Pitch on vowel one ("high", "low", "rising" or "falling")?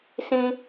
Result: high